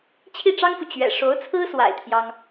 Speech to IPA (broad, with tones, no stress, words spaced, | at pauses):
t͡ɕʰi˥˩ʈ͡ʂɑ˥ŋfu˨ t͡ɕɥɛ̰˨˩ ʂo˧˥ʊ̯t͡sʰɹ̩˥swa̰˨˩ɪ̯ t̪ʰjɑ˥ŋ